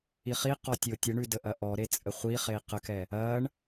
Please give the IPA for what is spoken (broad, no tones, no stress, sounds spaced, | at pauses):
i χ i q ɔ tʲ o tʲ ə ɳ ʉ d ə ʔ ɐ ʔ ɔ ɾ e t͡sʼ ə χʷ i χ e i̯ q ə k ɛ | ɐ ɳ